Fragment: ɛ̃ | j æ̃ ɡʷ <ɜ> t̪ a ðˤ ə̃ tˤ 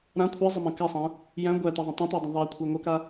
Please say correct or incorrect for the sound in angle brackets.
incorrect